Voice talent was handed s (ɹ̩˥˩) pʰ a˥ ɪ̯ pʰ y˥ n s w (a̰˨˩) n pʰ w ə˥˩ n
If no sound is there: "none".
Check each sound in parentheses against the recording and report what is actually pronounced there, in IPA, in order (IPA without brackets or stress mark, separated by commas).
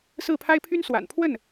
ɹ̩˥˩, a̰˨˩